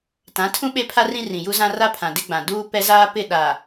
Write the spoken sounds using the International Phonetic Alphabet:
tã˨˦tʰũ˦ ɓe˦pʰa˦rĩ˦ rĩ˨ju˦zã˦ ra˦pʰã˨dɪ˦ɡ͡bã˨ duː˦pɛ˦zaː˦pɪ˦˨ ɗa˨

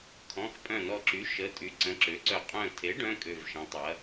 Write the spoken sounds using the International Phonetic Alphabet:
kʰɔ̃˩˧˩x pʼœ̃˧˩nɔ˧˩ǁy˩˥ ʃə˩˧˩tʼy˩˥ ǀə̃˩˧˩ǁø˩˥ǀœ˧˩ qʼœ̃˧˩ tʰe˩˥ɖœ̃˩˧˩ kʼø˧˩vʃɐ̃˩˥tˤɐ˩˥

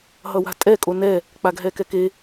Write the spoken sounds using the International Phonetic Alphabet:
ɦʌwa̤tʼɛ kʼonɛ | k͡paɡɦɛkɛke

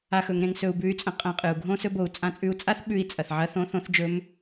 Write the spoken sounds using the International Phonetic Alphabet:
a˧xɵ˩˧ŋ ɾẽ˧ŋsɵ˧u̯bʉ˧˥y̯t͡sʼɐ̃˧ qʼɐ̃˧qʼɨ˩u̯ ɡʱõ˥sɵ˧˥ bo˩˧u̯t͡sʼã˧˥t͡sʼʉ˧˥u̯ t͡sʼa˥θ ɓʉ˧˥i̯ t͡sʼɐ˩θʕɐ˧˥ θõ˧˥ θõ˧˥θd͡ʒɵ˧˥m

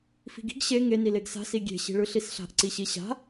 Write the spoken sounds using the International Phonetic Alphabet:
fi̤ɡi̤ɡ ɕe ŋe nileɡsa̤ siɡʲe̤ ɕi̤ɭɯɬisɬa̤ʔ ǀiɕiɕa̤

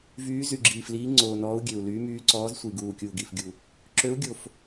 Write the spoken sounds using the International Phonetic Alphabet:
vyː˨˦zy˨˩ɡ͡ǁiː˨˩fliː˨˦ ŋ͡ǀoː˨˩ nɔː˨˦u̯ɡʲø˨˩u̯ lyː˨˦myː˨˦ǀɔː˨˦zsʷi˨˩ ɡuː˨˩kʲuː˨˩ɡi˨˩fɡʲu˨˩ | ǁø˨˦u̯ɡʲo˨˩f

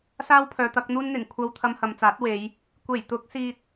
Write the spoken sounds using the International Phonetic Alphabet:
saː˥wpʰœː˨˧t̪ɐ˨˥k̚n̪uː˥n n̪ɪ˨˩ŋkʷʰɐ˧w t̪ʰɐ˧mhɐ˨mt͡saː˨˥t̚we˨˧j | kʷe˨˩jt̪ʊ˨˥k̚ siː˧t̚

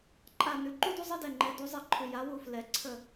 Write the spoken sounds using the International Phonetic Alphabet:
ǃʼa˦˨ nʉ˨ǃu˥du˥ zˤə˥dɛ˦˨ŋ͡ǃɛ˨˦ du˨˦zˤɛ˦˨ ǃʰʉ˨ja˨˦wu˦˨ flɛ˨˩˦ǀʰə˦˨

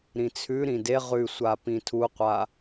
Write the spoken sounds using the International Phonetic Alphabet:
ɾĩt͡sʰʉɾĩ de ʁʉsʷa pĩtʰuqʷa

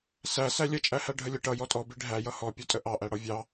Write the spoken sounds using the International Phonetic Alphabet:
sæsæ lʲət͡ʃʼæhæ ɖʱəlʲə ʈʌ jɔtʼɔbi ɖʱæ jʌhɔ pʲɔtʼəʔɑʔæ ɽɔvʲɑ

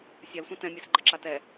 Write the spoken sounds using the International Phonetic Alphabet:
sʲalsʷã tɛ̃mʲɛsɡ͡ǃəǁa tɛ

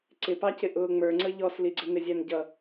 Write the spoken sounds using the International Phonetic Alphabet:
ǀɪpɑcɪ ʔʊːŋ͡mə˞ŋ͡ǀə ʎɔsliɡ͡ǀə nɪzʲænɟʌ

